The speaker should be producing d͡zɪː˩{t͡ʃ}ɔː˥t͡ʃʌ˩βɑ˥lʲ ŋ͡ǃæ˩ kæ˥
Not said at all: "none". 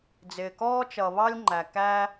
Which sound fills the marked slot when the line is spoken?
k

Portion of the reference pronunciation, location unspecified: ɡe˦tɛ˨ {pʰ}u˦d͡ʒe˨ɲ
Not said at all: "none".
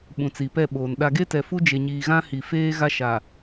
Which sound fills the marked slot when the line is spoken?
f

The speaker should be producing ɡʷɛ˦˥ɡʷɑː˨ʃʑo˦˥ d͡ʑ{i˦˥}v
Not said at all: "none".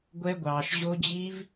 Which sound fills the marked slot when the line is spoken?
i˦˥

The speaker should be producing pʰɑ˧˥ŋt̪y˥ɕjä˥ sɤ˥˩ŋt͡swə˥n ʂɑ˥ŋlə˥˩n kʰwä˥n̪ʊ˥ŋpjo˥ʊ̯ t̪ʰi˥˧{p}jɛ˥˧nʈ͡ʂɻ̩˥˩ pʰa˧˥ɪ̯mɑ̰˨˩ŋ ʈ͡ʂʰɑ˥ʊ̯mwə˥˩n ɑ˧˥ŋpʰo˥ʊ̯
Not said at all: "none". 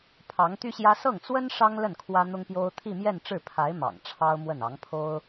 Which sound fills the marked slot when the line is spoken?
m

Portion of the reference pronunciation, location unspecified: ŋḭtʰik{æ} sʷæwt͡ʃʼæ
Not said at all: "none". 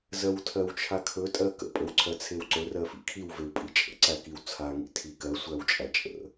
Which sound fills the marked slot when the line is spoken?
ɜ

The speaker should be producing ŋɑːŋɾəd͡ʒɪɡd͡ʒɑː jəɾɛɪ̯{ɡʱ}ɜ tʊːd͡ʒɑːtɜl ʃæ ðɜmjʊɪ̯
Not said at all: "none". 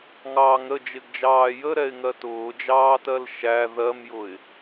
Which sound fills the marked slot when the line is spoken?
ŋ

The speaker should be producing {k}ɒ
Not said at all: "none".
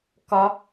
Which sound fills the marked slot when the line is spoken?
k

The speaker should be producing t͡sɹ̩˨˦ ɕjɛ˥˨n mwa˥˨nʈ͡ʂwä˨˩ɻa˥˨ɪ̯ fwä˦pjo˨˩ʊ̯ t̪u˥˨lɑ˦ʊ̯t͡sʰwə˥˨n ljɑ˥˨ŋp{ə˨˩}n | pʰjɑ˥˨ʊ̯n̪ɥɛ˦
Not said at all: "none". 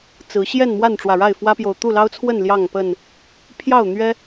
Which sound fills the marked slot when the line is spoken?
ə˥˨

